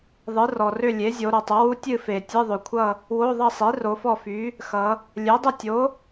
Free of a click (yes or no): yes